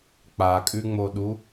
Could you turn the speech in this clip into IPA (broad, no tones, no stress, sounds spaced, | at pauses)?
k͡p a kʼ ʉ ŋ͡m o ɗ u